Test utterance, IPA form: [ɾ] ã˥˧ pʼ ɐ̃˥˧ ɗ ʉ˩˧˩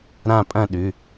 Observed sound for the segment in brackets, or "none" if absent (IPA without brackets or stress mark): ɾ